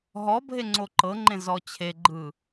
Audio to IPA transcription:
ɦ ɔ bʱ e ŋ͡ǀ o ǃ ɤ ŋ͡ǃ ẽ z ɔ t͡ɕʰ e ɡ͡ǃ ɯ

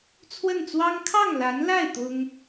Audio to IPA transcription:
t͡sʰ w ə˥˩ n t͡s w ɑ˥ ŋ kʰ ɑ˥˩ ŋ l a˧˥ n l a˥˩ ɪ̯ t̪ ʊ˥ ŋ

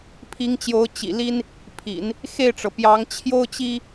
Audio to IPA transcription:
pʰ i˧˥ ŋ t͡ɕ j o˧˥ ʊ̯ t͡ɕ ḭ˨˩ l i˥ n | pʰ ḭ˨˩˦ n | x e˥˩ ɪ̯ ʈ͡ʂ ɤ˩ p j ɑ˧˥ ŋ t͡ɕʰ j o˥ ʊ̯ t͡ɕ i˥

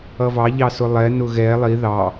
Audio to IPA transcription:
ʌ v ɑ ʎ ɑ s ʊ lˠ ɛ n ʊ ɣ ɛ lˠ i ð ɑ

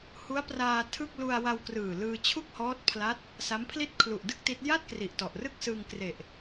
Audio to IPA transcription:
h u˦˥ a̯ p r aː˧ tʰ ɯ˥˩ k̚ l u˧ a̯ w a˧ w k r ɯː˨˩ l ɯː˧ t͡ɕʰ u˥˩ k̚ h ɔː˦˥ t̚ pʰ l a˦˥ t̚ | s a˦˥ m pʰ l i˥˩ t̚ kʰ l u˨˩ ʔ d ɯ˥˩ k̚ t i˦˥ t̚ j a˥˩ t̚ k r i˨˩ ʔ t ɔ˨˩ ʔ r ɯ˥˩ k̚ s ɯː˧ ŋ k r e˨˩ ʔ

